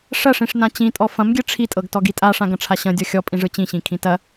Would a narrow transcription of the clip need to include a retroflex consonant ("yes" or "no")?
yes